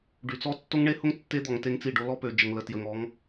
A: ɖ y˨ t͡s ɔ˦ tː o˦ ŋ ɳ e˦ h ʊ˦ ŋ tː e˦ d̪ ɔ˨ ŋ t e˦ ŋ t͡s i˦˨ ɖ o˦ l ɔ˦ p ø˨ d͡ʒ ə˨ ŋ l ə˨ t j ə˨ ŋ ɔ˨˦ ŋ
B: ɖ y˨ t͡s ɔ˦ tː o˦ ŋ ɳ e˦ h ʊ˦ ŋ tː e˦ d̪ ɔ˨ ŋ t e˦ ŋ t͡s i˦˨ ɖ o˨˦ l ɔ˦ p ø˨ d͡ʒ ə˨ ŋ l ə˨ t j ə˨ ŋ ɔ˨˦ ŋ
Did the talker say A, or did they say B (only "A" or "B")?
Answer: A